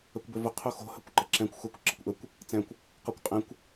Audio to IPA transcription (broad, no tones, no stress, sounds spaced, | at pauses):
ə kʷ b ø v ʊ qʰ u x o̤ h ə kʷ ǃ ə ǁ ɛ̃ kʷ x u kʷ ǁ ə̤ kʷ ʔ ə kʷ | t͡s ɛ̃ kʷ | q ɔ kʷ qʼ ɛ̃ kʷ